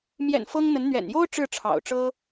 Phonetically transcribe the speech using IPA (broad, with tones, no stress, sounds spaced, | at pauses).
m j ɛ̰˨˩ n f ɤ˥ ŋ n̪ ə˧˥ n n̪ ɥ ɛ̰˨˩ n j o˥ ʊ̯ ʈ͡ʂ ɻ̩˥˩ ʈ͡ʂʰ ɑ̰˨˩ ʊ̯ ʈ͡ʂ ɤ˥